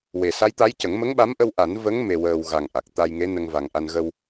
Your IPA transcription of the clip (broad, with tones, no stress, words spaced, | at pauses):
we˨˩sa˧˥jt̪a˧˥jcə˨˩˦ŋ mə˧˥ŋɓa˧˥mʔə˧w ʔa˨˩˦nvə˧˥ŋ me˧wəː˧w ɣa˨˩ŋ ʔa˨˩k̚ t̪a˧jŋe˧˥ nə˧ŋva˨˩ŋʔa˧n ɣə˧w